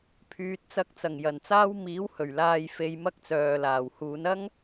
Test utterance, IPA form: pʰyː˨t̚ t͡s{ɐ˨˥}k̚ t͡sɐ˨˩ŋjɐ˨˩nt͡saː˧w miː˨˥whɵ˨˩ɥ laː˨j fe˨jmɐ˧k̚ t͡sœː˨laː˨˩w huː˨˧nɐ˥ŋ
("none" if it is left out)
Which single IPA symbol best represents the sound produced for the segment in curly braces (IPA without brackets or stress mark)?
ɐ˨˥